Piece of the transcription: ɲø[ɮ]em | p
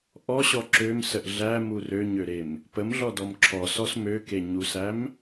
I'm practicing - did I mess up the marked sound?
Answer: yes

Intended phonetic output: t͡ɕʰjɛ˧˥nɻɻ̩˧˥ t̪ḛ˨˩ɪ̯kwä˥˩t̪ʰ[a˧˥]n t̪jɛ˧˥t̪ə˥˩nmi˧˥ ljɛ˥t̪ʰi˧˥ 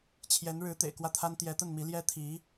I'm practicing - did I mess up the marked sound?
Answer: yes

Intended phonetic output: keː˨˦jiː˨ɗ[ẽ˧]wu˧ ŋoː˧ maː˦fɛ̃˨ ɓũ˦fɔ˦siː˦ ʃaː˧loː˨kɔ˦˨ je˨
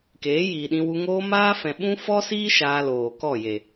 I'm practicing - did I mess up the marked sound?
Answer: yes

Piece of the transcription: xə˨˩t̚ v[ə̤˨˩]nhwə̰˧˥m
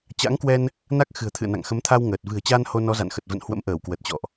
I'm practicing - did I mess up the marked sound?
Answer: yes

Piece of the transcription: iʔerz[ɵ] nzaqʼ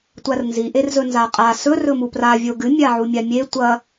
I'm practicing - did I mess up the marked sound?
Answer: no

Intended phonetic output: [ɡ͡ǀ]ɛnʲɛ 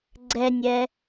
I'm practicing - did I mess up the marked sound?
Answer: no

